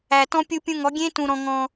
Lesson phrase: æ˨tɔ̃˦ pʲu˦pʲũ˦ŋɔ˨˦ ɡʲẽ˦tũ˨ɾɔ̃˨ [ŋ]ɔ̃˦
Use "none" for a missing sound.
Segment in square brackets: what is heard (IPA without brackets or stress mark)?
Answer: ŋ